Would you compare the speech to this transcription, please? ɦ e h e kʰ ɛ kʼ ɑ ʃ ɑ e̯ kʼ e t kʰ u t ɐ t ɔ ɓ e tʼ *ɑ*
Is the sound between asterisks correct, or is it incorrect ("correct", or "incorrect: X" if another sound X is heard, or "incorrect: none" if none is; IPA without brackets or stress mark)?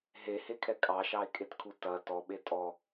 incorrect: ɔ